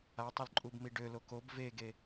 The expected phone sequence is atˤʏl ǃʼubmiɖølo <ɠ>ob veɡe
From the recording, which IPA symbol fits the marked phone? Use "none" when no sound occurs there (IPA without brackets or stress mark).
k